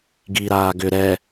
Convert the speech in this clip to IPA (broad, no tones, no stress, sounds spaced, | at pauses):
ɡ i ɾ aː ɡ ʏ ɾ ɛ